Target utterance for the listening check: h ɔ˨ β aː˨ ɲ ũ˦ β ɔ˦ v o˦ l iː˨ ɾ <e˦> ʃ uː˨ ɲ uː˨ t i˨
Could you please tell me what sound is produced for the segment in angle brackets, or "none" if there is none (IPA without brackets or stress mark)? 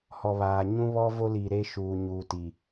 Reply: e˦